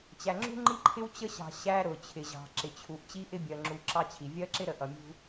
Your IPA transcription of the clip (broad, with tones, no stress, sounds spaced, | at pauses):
t͡ɕ æ˨ ŋ͡ǁ ṳ˦ ŋ͡ǃ i˦ ǃʰ ɪ˦ w t͡ɕ ə˦ ɕ ɑ̤˨ ɕ æ˦ ɾ ʊ˨ t͡ɕʰ ɪ˨ ʑ ɑ̤˨ ǁ ɪ˨ t͡ɕʰ u˨ ʔ t͡ɕ i˦ ʔ ɪ˦ bʲ ɜ˨ ŋ͡ǁ u˨ ǁ ɑ˦ t͡ɕʰ i˨ vʲ ɜ˦ ǁ ɪ˦ ɾ ə˨ ʔ ʌ˨ mʲ ṳ˦